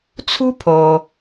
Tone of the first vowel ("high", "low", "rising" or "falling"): high